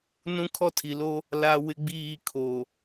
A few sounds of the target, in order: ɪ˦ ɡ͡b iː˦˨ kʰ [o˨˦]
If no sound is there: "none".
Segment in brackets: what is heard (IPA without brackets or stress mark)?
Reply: o˨